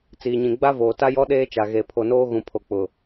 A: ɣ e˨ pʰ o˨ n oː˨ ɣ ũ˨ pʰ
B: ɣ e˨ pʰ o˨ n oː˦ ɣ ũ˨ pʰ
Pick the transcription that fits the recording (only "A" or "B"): B